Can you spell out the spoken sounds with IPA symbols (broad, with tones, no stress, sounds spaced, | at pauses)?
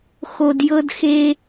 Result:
x o˧ d j ɤ˦ d x e˦